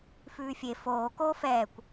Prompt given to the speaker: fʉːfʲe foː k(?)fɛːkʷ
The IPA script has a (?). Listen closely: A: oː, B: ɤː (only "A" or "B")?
A